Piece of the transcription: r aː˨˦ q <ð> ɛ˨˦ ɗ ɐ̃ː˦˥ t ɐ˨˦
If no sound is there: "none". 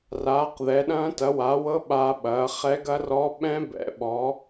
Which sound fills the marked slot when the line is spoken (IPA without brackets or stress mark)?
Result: ð